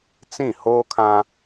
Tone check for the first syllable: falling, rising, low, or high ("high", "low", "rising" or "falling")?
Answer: falling